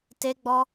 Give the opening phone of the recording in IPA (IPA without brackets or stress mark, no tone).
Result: t